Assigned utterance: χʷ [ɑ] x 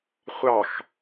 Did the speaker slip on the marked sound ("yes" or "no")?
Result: no